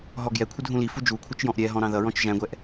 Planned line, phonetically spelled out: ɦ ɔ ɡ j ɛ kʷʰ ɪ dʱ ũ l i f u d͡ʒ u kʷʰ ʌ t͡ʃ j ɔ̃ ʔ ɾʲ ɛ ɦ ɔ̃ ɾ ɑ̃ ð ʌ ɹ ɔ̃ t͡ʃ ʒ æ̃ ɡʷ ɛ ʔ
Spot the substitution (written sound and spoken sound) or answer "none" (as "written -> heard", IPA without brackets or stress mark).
none